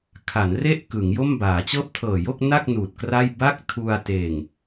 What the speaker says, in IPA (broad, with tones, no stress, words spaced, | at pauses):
kʰa˩˦nre˥˩ʔ kɯ˩˦ŋjo˥˩m baː˩˦t͡ɕɤː˥˩p̚tʰɤː˨˩ jo˥˩k̚na˥˩k̚ nuː˨˩t̚kra˥˩j ba˥˩k̚tʰu˧a̯ teː˨˩ŋ